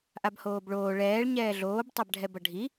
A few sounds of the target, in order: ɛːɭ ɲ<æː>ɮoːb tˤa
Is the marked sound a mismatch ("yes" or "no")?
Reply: yes